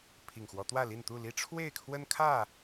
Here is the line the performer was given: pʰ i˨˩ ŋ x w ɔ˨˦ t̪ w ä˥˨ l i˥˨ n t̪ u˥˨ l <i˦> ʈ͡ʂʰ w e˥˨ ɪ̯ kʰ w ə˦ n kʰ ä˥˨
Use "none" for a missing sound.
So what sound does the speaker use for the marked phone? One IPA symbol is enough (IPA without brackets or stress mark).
i˦